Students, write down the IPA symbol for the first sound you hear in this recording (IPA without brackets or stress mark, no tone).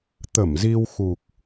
t̪